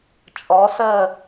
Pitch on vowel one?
rising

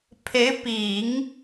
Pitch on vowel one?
rising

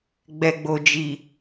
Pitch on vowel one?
low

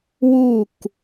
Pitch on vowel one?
falling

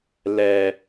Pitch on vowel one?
low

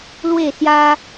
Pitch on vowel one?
falling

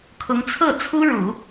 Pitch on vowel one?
rising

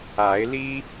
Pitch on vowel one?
rising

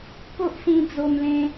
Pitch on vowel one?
high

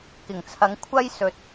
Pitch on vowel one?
low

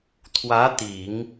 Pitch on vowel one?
rising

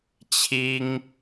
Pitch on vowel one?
high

